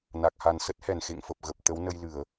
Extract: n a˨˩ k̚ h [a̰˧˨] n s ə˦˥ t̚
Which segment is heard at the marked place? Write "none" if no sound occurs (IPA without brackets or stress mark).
a˨˩